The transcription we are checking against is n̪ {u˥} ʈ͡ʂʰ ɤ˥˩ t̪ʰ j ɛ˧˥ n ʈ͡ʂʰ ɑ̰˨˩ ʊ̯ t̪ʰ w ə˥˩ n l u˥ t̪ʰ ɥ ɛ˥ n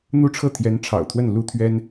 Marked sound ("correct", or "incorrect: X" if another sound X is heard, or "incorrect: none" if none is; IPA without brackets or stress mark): correct